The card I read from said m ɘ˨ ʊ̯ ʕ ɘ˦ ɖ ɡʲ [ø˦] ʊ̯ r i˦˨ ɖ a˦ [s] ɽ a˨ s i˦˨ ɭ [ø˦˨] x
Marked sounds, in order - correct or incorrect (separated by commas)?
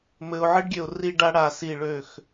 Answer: incorrect, incorrect, correct